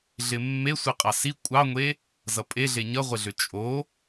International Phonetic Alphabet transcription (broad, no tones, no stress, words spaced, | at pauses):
ɮɪmːe sʷiqʼɑsi kʷʼɑŋʷe | zʌpʼeɮe ɲʌʁʷɪɮʏ t͡ʃʼo